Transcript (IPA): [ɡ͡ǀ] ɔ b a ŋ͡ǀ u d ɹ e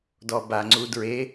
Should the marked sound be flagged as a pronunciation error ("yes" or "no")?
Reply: yes